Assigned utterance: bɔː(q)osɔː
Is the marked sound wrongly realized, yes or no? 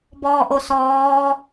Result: yes